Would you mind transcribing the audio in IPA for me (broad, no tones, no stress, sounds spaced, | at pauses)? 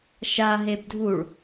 ʃ a ɦ e b dʱ u ɭ